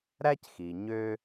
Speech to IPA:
ɾ æ˥ c x i˩ ɲ ø˧

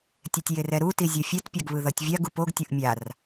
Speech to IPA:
tʲ ɛ tʲ j e r ɛ ɾ u t i zʲ ʌ fʲ ɛ t pʲ a ɡ β ɯ ð ʌ tʲ vʲ a ɡ u p o ɡ tʲ o ʔ mʲ a r

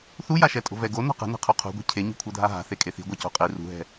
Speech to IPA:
θ u j a ʃ ɛ tʼ o̤ v ɛ ɡ o n o̤ q ɛ̤ n ɛ̤ qʰ u qʰ ṳ ɡʷ i̤ cʰ e ɲ i̤ kʷʰ ɤ dʱ a ɦ a̤ θ e kʼ e θ i̤ ɡʷ ɛ c o̤ qʼ i r ṳ ɦ ɛ̤

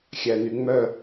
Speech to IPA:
xʲ æ n y ŋ͡m œ

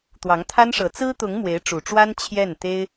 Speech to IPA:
t̪ w ɑ˧˥ ŋ t̪ʰ a˥ n ʂ ɤ˧˥ t͡s ɹ̩˥ t̪ ʊ˧˥ ŋ m w e˧˥ ɪ̯ ʈ͡ʂ u˨˩ ʈ͡ʂ w a˥ n t͡ɕʰ j ɛ˥˩ n t̪ e˥ ɪ̯

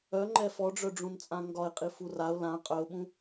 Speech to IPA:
œ ŋ͡ǃ ɛ f ɔ ɖ͡ʐ œ ɖ͡ʐ ũ n t͡sʼ ã ŋ ɡ ɒ ɪ̯ qʼ i f u r a ʊ̯ l ã qʼ œ ʊ̯ ɓ ũ

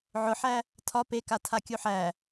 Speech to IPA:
ʕ ʊ ħ æ | tʰ ɒ p e k a tʰ a kʲ u ħ æ

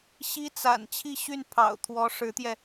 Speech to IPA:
ɕ i˥ t͡s a̰˨˩ n t͡ɕʰ i˥˧ ɕ y˥˩ n pʰ ɑ̰˨˩ ʊ̯ t̪ʰ w ɔ˧˥ ʂ ɻ̩˧˥ t̪ j ɛ˧

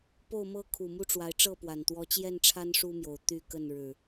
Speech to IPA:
p o˥˨ ʊ̯ m ɤ˦ kʰ u˨˩ m u˦ ʈ͡ʂ w a˨˦ ɪ̯ ʈ͡ʂ ɤ˥˨ p w a˨˩ n t̪ w ɔ˨˦ t͡ɕ j ɛ˥˨ n ʈ͡ʂʰ a˦ n ʂ u˦ m j o˨˩ ʊ̯ t̪ y˥˨ k ə˥˨ n ɻ ɻ̩˨˩

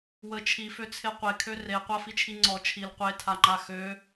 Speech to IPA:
w ə t͡ʃʰ i f ø t͡sʰ e qʷ e kʰ ø r e qʷ a f i t͡ʃʰ i ŋ͡ǀ ɔ t͡ʃʰ i l qʷ e tʰ a ŋ͡ǃ a x ø

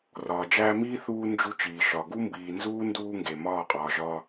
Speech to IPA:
r ɒː˨ d͡ʒ æː˦ m iː˦ θ uː˦ n d͡ʒ u˦ t͡ʃ iː˨ ʃ ɒ˨ ɡ u˦ m b iː˨ n z uː˦ n d uː˦ ŋ ɡ e˨ m ɒː˦˨ qʼ ɒː˨ ʒ ɒː˦

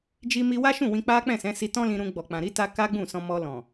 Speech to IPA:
d͡ʒ i˧ m i˧ w a˦ ʃ ũ˦˨ w ĩ˧ k͡p a˦ k͡p ɛ̃˦˨ s ɛ̃˨˦ s i˧ t ɔ̃˦ l ĩ˧ ɾ ũ˧ ɡ͡b ɔ˨ k͡p ã˨ ɾ i˧ t a˧ k a˦ ɡ͡b ũ˦˨ s ɔ̃˧ m ɔ˧ l ɔ̃˨

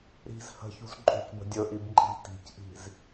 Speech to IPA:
ɾ i̤ z h ə̤ ç ṳ z ǃʼ ṳ c b ə̤ dʲ ɵ ʔ i b ǃʼ i̤ t i̤ c ʔ i̤ z

